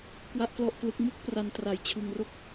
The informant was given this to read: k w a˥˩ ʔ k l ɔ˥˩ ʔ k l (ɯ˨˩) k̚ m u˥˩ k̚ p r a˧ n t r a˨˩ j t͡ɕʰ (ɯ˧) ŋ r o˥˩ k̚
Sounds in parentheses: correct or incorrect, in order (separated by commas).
incorrect, correct